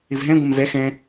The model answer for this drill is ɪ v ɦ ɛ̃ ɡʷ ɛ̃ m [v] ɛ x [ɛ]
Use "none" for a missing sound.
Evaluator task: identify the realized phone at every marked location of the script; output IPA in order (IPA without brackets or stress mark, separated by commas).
v, ɛ̃